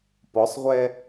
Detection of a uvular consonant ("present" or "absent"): present